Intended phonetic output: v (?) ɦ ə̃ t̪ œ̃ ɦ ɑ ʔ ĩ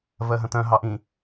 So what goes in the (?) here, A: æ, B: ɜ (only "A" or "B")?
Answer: B